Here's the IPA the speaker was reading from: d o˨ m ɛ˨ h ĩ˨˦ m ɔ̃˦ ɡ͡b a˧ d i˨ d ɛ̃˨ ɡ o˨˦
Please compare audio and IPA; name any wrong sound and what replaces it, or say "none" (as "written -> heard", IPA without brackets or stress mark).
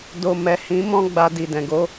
none